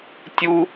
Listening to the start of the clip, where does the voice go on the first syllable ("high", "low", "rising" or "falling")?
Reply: high